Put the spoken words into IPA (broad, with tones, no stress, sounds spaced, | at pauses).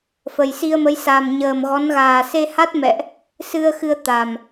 f ə˨˩ j s i˧ ə̯ m ə˨˦ j s a˨˩ m ɲ əː˨˩ m ɣ ɔ˨˦ n ɣ aː˨˩ s e˧ h a˦˥ t̚ m ɛ̰˧˨ ʔ | s ɨ˧ ə̯ x ɨ˧ ə̯ t̪ a˨˩ m